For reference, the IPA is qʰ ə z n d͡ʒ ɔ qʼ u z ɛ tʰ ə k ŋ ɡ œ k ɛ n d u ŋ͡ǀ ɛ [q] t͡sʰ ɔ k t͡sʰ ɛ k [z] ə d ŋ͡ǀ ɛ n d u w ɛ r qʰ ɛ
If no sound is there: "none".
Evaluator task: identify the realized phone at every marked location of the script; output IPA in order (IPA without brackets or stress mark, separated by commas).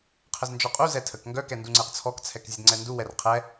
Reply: q, zʲ